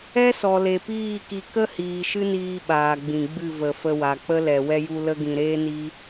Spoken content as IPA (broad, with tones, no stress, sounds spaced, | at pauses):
ɛ˦ s ɔ˨ l e˨ p iː˦˨ k i˧ k ə˦ h iː˨ ʃ ɨ˦ n iː˧ ɓ aː˨ ɡ͡b ĩ˨ ɡ͡b ɨ˦˨ v ə˨ f ə˧ w a˨ k͡p ə˦ l ɛ˨ w ɛ˦ j u˦ l ə˦ ɡ ĩ˧ ɾ eː˦ n i˦